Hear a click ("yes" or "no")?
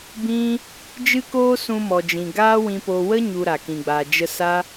no